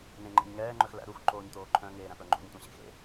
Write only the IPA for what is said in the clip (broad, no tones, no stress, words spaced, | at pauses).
nẽŋ͡ǃḛɲ ŋɛːŋ͡ǃœx læ̰ ɾuxǃoːɲt̪oː ǃʰœ̃ŋeːɾæ̃pœ ŋ͡ǃo̰ɲtʷẽɕḛxḛ